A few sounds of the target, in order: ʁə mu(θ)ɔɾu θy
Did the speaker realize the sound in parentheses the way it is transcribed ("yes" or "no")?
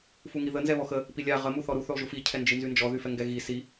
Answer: yes